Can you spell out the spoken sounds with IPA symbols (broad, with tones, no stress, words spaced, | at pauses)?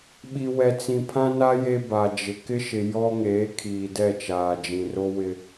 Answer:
ɓi˨wɛ˨t͡sĩ˨ pʰã˦na˦ je˦ ba˨d͡ʒɪ˨ kɪ˦ʃɪ˨ jɔ˦ŋeː˨˦ kʰiː˨dɛ˦˨t͡ʃaː˨d͡ʒĩ˨ ro˦wɪ˦